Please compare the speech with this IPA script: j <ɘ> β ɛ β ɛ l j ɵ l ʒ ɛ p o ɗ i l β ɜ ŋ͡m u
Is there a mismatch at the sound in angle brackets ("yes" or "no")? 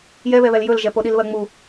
yes